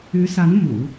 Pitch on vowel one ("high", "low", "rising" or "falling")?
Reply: rising